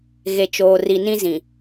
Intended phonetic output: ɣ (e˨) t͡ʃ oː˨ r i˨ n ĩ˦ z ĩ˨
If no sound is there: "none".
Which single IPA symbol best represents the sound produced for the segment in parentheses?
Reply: e˨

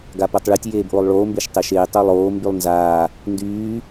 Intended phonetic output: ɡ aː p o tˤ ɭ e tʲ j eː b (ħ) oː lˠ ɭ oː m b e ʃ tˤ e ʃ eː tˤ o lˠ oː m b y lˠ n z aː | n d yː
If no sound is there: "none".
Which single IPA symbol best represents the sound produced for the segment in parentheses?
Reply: ʔ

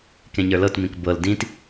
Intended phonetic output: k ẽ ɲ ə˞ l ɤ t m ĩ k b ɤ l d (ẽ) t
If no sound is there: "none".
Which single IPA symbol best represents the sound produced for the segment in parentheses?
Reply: ĩ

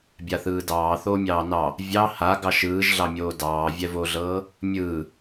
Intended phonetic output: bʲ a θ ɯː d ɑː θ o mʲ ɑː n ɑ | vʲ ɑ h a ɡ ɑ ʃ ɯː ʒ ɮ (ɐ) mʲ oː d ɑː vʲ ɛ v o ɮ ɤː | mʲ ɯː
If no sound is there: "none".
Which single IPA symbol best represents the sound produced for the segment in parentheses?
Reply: ɑ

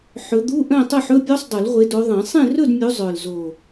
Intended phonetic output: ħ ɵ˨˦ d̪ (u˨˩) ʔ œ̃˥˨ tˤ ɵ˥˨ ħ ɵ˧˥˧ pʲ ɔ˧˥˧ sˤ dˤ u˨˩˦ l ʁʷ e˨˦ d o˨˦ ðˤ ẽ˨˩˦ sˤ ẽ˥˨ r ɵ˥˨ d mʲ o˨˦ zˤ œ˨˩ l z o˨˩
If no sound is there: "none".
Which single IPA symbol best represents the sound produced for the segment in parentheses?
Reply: u˧˥˧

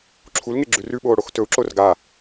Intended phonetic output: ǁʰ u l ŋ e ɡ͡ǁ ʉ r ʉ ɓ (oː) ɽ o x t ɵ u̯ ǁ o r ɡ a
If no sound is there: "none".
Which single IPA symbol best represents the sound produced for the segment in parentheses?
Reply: oː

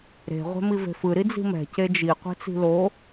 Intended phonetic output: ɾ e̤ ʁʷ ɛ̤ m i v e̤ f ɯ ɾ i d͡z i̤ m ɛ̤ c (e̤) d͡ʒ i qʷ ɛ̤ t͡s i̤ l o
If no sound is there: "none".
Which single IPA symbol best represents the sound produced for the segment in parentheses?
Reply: e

